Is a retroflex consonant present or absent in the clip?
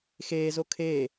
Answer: absent